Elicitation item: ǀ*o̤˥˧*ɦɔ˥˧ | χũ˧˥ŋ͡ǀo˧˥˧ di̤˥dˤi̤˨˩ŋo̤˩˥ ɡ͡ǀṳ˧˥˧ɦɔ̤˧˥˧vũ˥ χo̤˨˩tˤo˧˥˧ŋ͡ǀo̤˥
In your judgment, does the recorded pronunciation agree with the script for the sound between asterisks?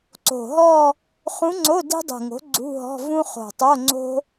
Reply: no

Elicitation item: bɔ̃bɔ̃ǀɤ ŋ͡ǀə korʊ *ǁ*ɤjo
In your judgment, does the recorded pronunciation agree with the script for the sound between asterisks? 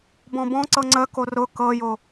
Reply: no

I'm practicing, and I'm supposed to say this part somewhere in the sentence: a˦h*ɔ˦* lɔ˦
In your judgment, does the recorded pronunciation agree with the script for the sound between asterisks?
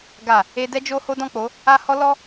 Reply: yes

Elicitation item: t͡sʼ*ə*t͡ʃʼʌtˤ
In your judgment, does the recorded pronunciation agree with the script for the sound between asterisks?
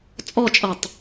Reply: no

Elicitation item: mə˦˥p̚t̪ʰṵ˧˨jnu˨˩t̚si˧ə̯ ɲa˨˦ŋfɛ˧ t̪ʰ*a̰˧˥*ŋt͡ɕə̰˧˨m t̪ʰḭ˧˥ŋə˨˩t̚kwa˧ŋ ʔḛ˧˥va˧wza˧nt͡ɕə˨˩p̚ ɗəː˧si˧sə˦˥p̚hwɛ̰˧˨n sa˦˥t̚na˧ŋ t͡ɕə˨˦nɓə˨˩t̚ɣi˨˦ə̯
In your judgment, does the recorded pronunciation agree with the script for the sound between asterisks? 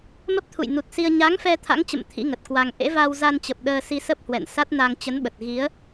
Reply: yes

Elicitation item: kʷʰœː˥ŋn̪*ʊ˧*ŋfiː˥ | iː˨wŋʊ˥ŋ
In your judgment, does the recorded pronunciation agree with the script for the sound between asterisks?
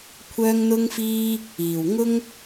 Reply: no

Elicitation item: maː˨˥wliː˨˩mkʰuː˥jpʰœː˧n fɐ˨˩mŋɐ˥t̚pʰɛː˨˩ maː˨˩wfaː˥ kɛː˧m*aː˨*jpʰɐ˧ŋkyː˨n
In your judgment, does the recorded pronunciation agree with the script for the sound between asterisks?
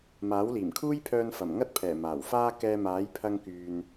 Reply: no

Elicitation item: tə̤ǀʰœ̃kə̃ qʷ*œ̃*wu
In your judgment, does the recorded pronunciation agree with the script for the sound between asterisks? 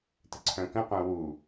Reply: yes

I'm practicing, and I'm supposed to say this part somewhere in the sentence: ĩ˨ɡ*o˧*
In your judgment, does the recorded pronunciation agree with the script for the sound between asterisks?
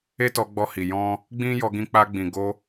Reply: yes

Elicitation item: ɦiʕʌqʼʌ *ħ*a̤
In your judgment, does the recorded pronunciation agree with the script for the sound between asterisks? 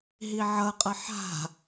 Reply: yes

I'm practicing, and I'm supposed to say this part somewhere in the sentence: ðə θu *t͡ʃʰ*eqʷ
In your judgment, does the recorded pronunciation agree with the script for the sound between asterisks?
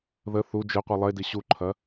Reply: no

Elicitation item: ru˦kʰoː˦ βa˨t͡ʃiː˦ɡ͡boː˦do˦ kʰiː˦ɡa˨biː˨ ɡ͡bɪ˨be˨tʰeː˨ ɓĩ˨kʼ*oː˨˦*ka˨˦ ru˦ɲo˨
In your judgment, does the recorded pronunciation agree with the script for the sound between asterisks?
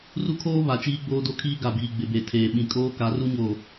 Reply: no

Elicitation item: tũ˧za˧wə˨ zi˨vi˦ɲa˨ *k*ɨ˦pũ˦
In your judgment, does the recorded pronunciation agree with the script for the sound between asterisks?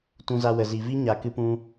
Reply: yes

